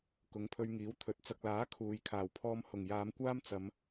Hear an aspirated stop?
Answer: yes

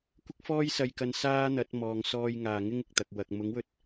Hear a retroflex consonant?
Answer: no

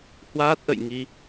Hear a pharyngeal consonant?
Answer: no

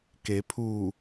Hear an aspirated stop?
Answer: yes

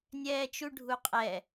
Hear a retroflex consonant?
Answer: yes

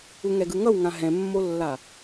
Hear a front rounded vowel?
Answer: no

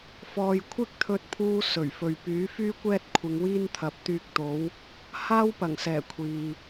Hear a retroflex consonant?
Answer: no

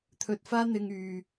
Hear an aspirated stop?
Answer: yes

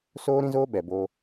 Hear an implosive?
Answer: yes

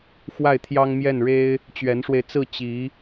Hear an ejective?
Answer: no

